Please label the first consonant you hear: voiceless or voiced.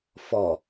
voiceless